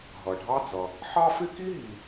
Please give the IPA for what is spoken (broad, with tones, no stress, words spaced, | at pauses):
ɦʌ˩ɖʱɑ˥d͡zʌ˩ | ħɑ˥fɪ˥ ki˥ɦi˩